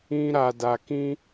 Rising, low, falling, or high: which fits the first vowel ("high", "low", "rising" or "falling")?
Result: high